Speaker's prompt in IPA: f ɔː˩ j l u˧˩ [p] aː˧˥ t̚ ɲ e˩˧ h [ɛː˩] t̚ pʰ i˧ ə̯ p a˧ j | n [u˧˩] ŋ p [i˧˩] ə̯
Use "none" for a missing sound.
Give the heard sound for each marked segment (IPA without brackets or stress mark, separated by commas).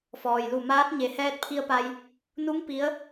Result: m, ɛː˧, u˧˥, i˧˥